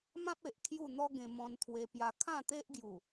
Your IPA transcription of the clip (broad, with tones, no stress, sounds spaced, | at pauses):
m ã˦ p̚ e˨ ʔ kʰ j u˥˧ n̪ ɔ˦ ɡ ẽ˧ m ɔ̃˧ n t̪ʰ w e˧ p j a˧ kʰ ã˥˧ t̪ e˦ ʔ ɡ j u˨˩